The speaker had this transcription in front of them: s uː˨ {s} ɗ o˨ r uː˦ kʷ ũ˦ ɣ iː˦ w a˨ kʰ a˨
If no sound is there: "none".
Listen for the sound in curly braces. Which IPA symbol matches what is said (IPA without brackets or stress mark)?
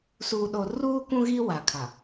none